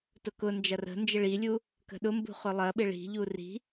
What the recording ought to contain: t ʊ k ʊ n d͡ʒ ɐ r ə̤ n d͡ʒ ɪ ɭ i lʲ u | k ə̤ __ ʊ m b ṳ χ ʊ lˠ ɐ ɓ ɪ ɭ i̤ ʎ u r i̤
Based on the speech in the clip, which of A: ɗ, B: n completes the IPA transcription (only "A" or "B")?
A